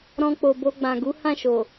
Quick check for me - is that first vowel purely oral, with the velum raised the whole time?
no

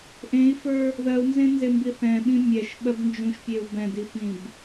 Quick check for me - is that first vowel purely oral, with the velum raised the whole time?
no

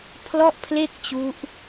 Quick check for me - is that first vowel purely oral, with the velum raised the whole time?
yes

